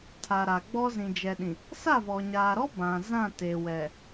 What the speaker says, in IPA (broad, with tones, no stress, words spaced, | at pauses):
tʰa˨ ɾa˨ɡ͡bɔ˦ zĩ˨d͡ʒɛ˨ɗĩ˨ | sa˦˨vɔ˨ɲaː˨ɾɔ˦ bã˨ zã˦˨te˨ wɛ˨